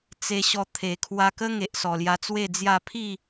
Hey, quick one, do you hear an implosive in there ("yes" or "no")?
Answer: no